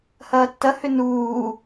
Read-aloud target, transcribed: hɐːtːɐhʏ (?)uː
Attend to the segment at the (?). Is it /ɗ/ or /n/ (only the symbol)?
n